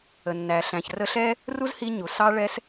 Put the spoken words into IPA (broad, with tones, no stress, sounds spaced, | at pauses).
ə˨ nː æ˨ ɬ æ̃˨ ç r ə˧ ɬ ɛ˦ | r u˦ z h i˧ ɲ u˨ s ɑ˦ ɭ ɛ˦ s